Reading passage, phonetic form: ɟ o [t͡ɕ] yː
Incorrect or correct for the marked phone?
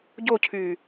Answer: incorrect: cʰ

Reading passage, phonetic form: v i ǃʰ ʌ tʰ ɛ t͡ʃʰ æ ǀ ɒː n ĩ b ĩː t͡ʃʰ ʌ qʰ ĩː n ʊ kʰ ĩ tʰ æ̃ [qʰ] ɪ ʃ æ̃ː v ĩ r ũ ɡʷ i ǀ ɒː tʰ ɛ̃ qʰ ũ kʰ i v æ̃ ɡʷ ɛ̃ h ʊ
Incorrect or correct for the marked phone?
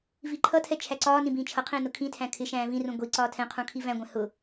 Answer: incorrect: kʰ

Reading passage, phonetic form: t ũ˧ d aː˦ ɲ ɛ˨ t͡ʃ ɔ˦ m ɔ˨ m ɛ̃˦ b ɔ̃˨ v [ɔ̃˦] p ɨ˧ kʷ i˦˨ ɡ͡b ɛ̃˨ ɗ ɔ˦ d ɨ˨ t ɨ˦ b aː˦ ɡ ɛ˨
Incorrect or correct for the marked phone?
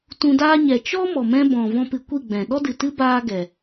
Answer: correct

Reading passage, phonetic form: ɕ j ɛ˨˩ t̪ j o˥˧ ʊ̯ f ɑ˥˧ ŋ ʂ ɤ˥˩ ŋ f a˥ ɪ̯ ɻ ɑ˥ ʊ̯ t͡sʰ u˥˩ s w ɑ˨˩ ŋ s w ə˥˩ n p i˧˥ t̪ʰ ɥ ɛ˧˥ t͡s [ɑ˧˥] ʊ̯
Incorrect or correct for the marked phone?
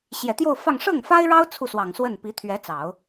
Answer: incorrect: ɑ˨˩˦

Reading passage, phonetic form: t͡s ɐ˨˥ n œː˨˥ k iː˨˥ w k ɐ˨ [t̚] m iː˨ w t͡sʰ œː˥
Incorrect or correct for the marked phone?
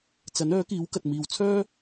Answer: correct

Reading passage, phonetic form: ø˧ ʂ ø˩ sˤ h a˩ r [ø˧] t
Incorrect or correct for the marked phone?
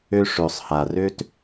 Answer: incorrect: ø˥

